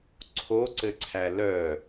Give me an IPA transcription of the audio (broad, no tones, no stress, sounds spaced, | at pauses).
ǀʰ o ǀ ɘ ǀʰ æ l œ